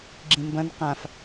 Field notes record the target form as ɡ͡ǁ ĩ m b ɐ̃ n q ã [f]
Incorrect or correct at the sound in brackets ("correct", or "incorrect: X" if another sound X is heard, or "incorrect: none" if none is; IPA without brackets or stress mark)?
correct